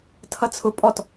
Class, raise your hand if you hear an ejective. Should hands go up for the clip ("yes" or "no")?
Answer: yes